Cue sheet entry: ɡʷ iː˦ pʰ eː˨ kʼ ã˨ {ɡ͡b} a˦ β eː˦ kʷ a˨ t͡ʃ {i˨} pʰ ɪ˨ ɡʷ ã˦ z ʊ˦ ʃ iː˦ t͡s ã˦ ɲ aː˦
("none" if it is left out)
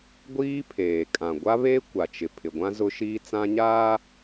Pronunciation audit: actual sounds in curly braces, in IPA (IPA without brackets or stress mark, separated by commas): ɡʷ, ɪ˨